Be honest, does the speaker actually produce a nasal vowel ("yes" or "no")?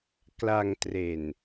no